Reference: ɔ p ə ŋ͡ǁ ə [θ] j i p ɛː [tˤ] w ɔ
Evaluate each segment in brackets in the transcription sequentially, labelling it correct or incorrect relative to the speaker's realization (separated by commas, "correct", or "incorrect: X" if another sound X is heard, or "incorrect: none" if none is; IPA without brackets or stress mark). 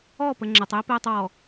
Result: incorrect: tˤ, correct